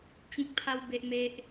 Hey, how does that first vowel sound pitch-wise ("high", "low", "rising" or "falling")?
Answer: high